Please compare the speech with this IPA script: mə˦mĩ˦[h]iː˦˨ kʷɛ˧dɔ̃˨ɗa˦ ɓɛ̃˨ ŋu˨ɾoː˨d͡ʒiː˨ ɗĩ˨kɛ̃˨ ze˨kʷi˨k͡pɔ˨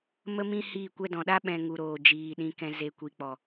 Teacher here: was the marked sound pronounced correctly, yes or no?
yes